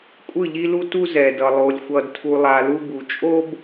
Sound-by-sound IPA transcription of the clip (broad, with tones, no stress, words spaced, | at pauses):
kʷʼɯ˦˨ʎi˦lu˦ tu˦zɛ˨dʌ˨ lˠo˨lʲ xʷʌ˨dtʰu˨lˠa˨ lu˦bu˨ t͡ʃʼo˦b